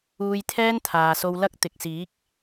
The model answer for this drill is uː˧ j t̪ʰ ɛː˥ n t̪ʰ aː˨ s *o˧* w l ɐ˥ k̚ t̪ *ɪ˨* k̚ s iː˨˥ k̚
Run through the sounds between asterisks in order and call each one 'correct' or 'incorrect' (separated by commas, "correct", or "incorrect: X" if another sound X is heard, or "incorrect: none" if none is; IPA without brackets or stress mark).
correct, correct